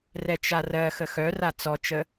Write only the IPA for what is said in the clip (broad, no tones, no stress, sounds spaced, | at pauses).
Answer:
r ɛ t͡ʃ a r ɜ x ə x œ r a t͡s ɔ t͡ʃ ə